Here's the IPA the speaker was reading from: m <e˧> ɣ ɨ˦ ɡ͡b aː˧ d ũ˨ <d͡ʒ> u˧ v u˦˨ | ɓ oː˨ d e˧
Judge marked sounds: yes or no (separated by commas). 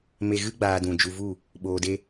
yes, yes